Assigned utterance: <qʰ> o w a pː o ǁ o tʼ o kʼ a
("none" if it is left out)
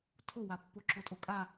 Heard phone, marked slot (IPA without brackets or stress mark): tʰ